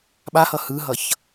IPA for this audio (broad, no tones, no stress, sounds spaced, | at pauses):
ɓ a h ʌ h ɯ ɦ ʌ ç